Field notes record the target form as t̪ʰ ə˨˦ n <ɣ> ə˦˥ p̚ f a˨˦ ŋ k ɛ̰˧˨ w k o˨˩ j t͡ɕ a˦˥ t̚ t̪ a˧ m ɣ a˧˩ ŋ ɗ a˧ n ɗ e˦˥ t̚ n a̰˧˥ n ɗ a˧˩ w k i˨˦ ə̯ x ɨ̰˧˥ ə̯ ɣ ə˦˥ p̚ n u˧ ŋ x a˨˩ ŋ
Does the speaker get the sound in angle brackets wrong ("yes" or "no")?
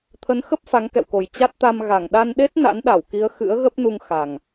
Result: yes